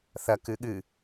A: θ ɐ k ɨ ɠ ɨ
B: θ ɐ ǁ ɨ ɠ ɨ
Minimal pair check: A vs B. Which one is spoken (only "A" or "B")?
A